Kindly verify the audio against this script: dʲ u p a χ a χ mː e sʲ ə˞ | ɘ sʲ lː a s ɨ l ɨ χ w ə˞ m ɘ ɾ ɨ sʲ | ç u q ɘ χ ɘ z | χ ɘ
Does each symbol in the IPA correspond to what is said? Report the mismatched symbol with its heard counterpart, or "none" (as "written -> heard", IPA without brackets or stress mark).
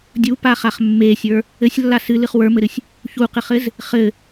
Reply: none